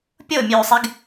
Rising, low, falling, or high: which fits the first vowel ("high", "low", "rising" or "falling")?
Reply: falling